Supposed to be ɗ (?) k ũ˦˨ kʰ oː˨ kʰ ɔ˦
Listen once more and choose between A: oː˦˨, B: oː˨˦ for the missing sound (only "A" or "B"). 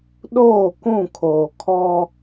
A